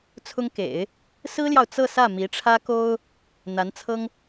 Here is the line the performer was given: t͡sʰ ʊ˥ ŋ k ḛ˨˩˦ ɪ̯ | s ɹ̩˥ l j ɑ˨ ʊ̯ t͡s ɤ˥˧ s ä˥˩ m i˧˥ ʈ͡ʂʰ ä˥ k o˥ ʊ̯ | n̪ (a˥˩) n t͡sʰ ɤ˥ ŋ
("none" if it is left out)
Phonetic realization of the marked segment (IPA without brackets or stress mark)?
a˧˥